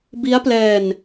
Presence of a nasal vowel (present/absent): absent